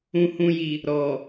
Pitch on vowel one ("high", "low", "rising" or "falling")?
low